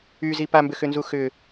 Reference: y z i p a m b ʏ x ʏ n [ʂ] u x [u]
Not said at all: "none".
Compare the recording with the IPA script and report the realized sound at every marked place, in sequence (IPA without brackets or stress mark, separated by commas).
z, ʏ